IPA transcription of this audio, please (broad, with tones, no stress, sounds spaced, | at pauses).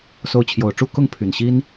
s o˧˥ ʊ̯ t͡ɕʰ j o˨˩ ʊ̯ ʈ͡ʂ u˥ k ʊ˥˩ ŋ pʰ y˨˩ n ɕ i˥ n